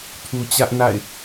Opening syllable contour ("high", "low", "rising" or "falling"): low